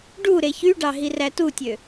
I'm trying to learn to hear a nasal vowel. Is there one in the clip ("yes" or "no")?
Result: no